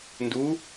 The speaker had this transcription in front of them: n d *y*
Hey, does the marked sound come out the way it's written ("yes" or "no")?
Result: no